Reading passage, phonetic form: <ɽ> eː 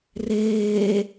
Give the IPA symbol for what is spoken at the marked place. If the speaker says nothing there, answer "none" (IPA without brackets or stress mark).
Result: r